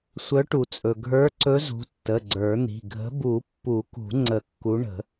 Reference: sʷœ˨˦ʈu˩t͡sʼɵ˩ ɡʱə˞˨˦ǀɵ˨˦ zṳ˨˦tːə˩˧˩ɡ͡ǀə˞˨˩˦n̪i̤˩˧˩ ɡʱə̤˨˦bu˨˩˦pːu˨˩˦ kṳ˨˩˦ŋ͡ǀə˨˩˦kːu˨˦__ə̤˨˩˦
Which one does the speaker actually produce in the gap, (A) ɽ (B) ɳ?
B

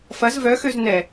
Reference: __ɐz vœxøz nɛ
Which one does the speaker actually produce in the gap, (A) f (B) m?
A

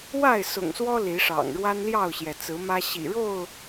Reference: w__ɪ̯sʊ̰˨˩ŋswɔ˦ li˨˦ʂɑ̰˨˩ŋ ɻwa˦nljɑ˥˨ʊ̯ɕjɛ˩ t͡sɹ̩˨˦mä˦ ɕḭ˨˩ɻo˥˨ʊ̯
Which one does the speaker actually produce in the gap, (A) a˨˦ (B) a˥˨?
B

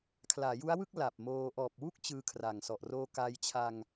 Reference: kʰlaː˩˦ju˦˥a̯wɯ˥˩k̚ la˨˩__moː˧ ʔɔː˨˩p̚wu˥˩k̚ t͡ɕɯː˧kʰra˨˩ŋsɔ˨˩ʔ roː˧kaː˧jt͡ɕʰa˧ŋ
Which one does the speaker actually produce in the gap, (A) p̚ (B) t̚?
A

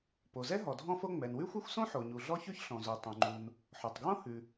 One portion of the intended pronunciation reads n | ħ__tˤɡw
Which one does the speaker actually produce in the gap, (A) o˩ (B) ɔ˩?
B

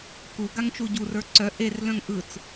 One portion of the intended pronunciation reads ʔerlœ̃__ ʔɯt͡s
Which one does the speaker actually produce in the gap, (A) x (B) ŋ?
B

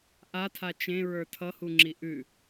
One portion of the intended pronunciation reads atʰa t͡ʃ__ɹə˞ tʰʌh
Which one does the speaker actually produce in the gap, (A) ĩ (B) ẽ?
B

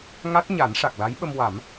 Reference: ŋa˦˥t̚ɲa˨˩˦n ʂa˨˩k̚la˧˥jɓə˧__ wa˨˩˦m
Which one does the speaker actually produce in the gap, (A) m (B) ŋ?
A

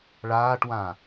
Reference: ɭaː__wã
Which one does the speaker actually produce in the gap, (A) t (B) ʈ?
B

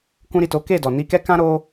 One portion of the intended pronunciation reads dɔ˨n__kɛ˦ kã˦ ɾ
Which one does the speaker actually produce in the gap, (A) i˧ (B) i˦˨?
A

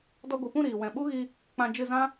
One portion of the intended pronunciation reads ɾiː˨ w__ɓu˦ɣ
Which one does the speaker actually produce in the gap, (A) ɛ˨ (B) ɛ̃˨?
B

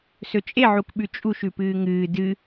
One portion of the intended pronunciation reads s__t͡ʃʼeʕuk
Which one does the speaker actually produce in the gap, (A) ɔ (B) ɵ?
B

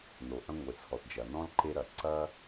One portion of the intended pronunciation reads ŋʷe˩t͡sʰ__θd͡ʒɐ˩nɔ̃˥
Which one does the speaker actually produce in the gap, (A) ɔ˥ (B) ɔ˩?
B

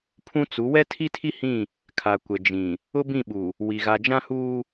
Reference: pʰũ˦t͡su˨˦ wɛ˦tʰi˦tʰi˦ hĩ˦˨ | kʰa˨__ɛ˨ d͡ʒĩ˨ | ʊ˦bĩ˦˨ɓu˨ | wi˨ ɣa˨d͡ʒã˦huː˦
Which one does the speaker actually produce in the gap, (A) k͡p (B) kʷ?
B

